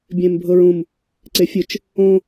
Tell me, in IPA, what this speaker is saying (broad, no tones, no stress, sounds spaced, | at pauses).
bʲ ẽ m bʱ ɤ ɹ ũ m | ǀ e fʲ ɯ t͡ʃ | õ